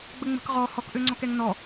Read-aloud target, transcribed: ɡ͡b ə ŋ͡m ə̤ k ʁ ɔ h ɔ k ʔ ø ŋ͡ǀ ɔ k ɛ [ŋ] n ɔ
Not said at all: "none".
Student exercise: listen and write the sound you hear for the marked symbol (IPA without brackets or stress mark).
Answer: ŋ